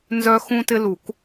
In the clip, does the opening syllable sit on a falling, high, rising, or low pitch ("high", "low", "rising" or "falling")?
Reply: high